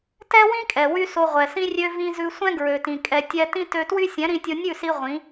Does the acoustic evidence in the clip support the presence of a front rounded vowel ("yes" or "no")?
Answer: yes